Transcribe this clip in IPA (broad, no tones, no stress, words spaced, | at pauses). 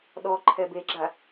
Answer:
ɗɔǃʰɛ beɡ͡ǁa